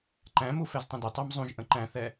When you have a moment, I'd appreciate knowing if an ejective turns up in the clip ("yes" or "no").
no